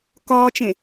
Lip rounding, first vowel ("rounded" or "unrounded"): rounded